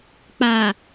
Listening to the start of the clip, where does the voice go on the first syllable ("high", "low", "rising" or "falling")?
low